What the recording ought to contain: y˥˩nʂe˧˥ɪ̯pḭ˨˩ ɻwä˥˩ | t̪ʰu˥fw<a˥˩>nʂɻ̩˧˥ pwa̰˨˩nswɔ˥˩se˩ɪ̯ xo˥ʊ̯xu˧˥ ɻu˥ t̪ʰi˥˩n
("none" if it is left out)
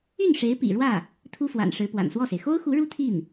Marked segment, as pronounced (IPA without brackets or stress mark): a̰˨˩